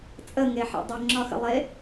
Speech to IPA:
t͡sʼ ə ŋ e ħ ḛ dˤ ə ŋ͡ǁ ɒ x ə̰ lˠ e

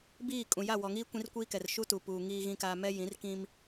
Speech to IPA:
b iː˦˨ kʼ ũ˨ j a˦˨ w ɔ˨ ŋ iː˦ kʷ ĩ˦ r kʷ iː˦ k ɛ˨ r ʃ u˦ t u˨ p uː˨ ŋ iː˨ ɣ ĩ˨ k aː˨ m ɛ˦ j ĩ˨˦ r k ĩ˦ m

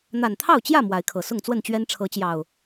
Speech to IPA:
n̪ a˨˩ n t̪ʰ ɑ˥˨ ʊ̯ t͡ɕ j ä˥˨ m w a˨˦ ɪ̯ kʰ ɤ˨˩ s ʊ˥˨ ŋ t͡s w ə˥˨ n t͡ɕ ɥ ɛ˦ n ʈ͡ʂʰ ɤ˨˦ t͡ɕ j ɑ˨˩ ʊ̯

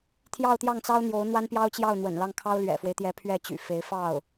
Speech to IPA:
t̪ʰ j ɑ˥˧ ʊ̯ t̪ j ɑ˥˩ ŋ t͡s ɑ˥ ʊ̯ n̪ j o˧˥ ʊ̯ n̪ w a˥ n p j ɑ˥ ʊ̯ t͡ɕ j ɑ˥˩ ʊ̯ n̪ w ə̰˨˩ n l ɑ˥˩ ŋ kʰ ɑ˥ ʊ̯ l ɥ ɛ̰˨˩ f w e˦ ɪ̯ t̪ j ɛ˧˥ pʰ ɥ ɛ˥˩ t͡ɕ y̰˨˩ f e˧˥ ɪ̯ f ɑ˥˩ ʊ̯

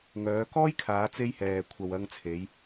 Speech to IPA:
ŋ œː˨˧ k ɔː˥ j kʰ aː˨˧ t͡s e˥ j h ɛː˨ kʷʰ ɐ˨ w ɐ˧ ŋ t͡sʰ e˨˧ j

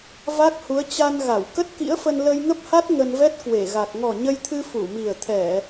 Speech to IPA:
v a˦˥ k̚ h u˨˦ ə̯ t͡ɕ a˧ n ɣ a˧˩ w k ə˦˥ t̚ k ḭ˧˥ ə̯ f ə˧ n l ə˧ j ŋ ə˦˥ p̚ h a˦˥ t̚ ŋ ə˧ n v ɛ˦˥ t̚ k w e˧˩ ɣ a˨˩ k̚ ŋ ɔ˨˩ ɲ ə˧ j t̪ʰ ɨ˧ f u˧˩ m i˨˩ ə̯ t̪ʰ ɛ˧˩˨

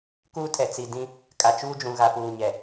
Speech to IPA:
k uː˦ tʰ ɛ˨ t͡s i˨ d ĩ˦ | kʼ a˨ t͡ʃ uː˦ d͡ʒ ũ˨ ɣ a˨ p uː˨ ɲ ɛ˨

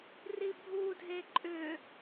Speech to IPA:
r i bʱ u dʱ e ǃʼ ʏ

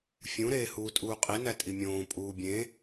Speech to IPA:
fʲ ũ ɾ eː h uː tʼ uː qʼ i n æ tʼ i mʲ õː pʼ uː bʲ ẽ

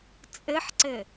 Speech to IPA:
t͡sʼ ɘ ħ ǀ ɘ

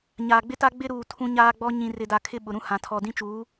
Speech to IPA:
ɲ aː˨ ɡ͡b ɪ˦ t a˦ ɡ͡b ɪ˦ ɾ uː˨ tʰ ũ˦ ɲ aː˦ ɡ͡b ɔ˦ ɲ ĩ˨ r ɪ˨ d a˨ kʰ ɪ˦˨ ɓ ʊ˨ ɾ ũ˦ h ã˨ tʰ ɔ˨ d ĩ˦ t͡ʃ uː˨˦

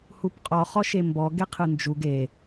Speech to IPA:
h u p qʼ ɔ χ ɔ ʃ e m b ɔ ɡ e qʰ ɯ n d͡ʒ u ɡ e

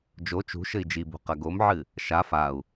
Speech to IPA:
d͡ʒ o t͡ʃ ṳ ʃ ɘ i̯ d͡ʒ i b ṳ q ɐ ɡ o m ʕ ɨ | ʃ a f a u̯

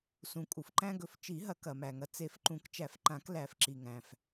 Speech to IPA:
s ũ˩ kʼ u˩ f ǃ æ̃˧ ɡ ɵ˨˩˦ f t͡ʃ i˨˩˦ ɦ ɐ˨˩˦ k ɐ˩ m æ˩ ŋ ɐ˩ t͡s e˨˩˦ f ǃ ũ˨˩˦ k t͡ʃ æ˨˩˦ f ǃ ã˨˩˦ k l æ˨˩˦ f ǁ i˩ ŋ æ̃˩ f

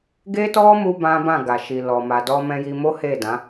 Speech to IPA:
ɡ e˦ t ɔ˦ m u˧ b ã˦ b ã˦˨ ɡ a˨ ʃ i˨ l ɔ˨ m a˨ d ɔ˧ m ɛ̃˧ j i˧ m o˦ h e˦˨ d ã˨˦

